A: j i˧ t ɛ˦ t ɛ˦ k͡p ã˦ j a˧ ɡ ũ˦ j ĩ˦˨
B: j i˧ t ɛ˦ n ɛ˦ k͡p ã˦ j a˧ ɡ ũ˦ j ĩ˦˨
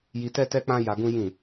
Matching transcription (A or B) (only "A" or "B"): A